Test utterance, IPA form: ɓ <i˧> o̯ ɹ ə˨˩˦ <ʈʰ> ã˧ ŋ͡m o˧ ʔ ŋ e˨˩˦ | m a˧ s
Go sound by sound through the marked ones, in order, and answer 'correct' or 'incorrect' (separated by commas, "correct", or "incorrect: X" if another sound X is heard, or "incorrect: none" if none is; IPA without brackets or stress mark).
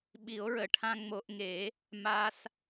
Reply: incorrect: i˨˩˦, correct